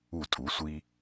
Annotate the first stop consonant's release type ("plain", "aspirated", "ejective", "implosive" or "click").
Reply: ejective